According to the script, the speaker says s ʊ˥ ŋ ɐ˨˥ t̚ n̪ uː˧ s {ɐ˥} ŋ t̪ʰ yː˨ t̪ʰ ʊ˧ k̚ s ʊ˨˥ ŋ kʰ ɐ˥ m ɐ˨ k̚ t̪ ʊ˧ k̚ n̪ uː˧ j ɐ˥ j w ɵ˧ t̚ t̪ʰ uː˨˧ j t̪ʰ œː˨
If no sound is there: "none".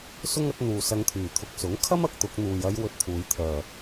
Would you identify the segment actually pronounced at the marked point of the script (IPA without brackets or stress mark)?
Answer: ɐ˧